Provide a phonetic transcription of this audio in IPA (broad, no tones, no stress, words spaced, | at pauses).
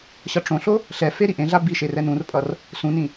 ɕʌʈ͡ʂõɬo | ɬɛfe ɾiʔẽɮa biʃe rɛnũrpʼʌr | sũnĩ